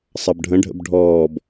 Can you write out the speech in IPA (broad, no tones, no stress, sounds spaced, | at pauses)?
sˤ ɑ b ɖʱ ə̃ ɖʱ ə̰ b ɖʱ ɔː b